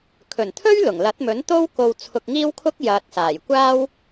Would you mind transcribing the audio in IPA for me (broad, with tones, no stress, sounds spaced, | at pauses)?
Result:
kʰ ɵ˨˩ n t̪ʰ ɵ˥ ɥ l ʊ˨˩ ŋ l ɐ˨˥ t̚ m ɵ˨˥ n t̪ o˥ w k o˧ w t͡sʰ ʊ˧ k̚ ŋ iː˥ w kʰ ʊ˥ k̚ j ɐ˨ t̚ s aː˨˩ j kʷ aː˥ w